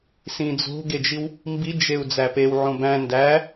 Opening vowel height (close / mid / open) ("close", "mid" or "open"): close